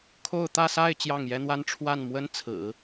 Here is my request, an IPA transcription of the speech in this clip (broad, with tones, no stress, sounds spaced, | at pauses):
kʰ o˥˧ ʊ̯ t̪ ä˥˧ s a˥˧ ɪ̯ t͡ɕ j ɑ˥˩ ŋ j ɛ˥ n̪ w a˥ n ʈ͡ʂʰ w a˥˩ n m w ə˥ n t͡sʰ ɹ̩˨˩˦